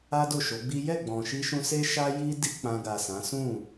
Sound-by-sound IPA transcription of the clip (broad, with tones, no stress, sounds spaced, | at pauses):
a˦ d o˦˨ ʃ o˨˦ ɡ͡b i˦ j ɛ˦˨ ɡ͡b ɔ̃˨ ʃ i˧ ʃ ũ˧ s e˦ ʃ a˦ j i˦ d i˦ k͡p ã˧ ɡ a˨ s ã˨˦ s ũ˦˨